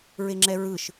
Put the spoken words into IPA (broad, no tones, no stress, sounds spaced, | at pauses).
ɹ e ŋ͡ǁ ɛ ɹ ɯ ʃ